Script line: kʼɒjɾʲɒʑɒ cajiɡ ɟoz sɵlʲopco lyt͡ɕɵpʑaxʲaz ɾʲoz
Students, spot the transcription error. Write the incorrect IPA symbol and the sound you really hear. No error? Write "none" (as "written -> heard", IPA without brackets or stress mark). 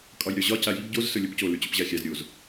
none